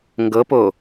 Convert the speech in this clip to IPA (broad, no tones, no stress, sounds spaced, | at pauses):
ŋ ɡ ɤ p o